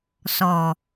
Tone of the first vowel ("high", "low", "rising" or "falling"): low